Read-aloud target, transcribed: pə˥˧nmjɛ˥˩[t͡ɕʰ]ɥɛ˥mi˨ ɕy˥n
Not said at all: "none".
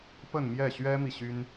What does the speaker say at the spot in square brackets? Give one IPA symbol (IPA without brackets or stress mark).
ɕ